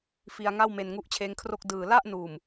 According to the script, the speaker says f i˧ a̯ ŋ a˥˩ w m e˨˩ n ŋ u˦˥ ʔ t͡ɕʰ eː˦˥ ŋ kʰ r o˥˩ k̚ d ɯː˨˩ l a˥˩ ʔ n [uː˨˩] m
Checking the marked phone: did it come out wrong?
no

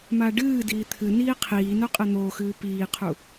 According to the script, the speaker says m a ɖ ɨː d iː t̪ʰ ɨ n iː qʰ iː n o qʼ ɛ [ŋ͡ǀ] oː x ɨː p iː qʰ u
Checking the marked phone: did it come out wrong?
yes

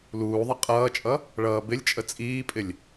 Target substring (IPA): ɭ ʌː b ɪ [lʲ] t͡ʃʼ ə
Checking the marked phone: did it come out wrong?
no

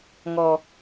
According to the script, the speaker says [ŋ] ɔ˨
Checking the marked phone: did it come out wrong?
no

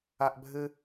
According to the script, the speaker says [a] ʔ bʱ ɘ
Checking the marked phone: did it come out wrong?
no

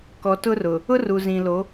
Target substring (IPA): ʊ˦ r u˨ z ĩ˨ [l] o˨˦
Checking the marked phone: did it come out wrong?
no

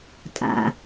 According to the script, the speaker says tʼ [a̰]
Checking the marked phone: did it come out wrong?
no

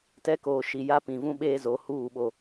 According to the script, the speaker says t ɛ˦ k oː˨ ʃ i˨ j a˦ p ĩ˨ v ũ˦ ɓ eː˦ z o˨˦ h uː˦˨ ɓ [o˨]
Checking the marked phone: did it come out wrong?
no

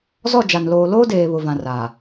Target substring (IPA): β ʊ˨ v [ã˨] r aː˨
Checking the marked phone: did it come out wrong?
no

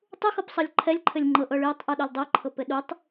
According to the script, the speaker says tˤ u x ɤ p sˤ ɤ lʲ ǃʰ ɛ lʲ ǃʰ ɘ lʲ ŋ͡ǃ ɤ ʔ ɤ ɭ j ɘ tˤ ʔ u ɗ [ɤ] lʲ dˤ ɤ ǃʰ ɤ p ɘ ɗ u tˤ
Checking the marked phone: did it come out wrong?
yes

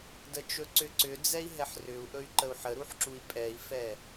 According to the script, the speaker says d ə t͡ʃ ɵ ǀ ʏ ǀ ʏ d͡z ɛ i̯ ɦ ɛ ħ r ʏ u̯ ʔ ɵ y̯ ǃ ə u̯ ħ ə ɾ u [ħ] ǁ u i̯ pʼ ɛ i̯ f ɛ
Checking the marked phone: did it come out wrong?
no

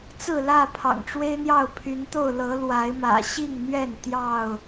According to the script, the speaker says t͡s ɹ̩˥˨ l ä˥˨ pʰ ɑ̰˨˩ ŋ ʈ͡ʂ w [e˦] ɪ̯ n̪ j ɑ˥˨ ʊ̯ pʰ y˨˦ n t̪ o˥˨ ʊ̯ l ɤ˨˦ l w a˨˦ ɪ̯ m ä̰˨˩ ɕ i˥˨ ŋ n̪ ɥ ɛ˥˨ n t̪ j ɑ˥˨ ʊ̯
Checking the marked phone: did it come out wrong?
no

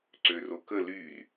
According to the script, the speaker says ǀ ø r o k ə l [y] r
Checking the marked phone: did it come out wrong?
no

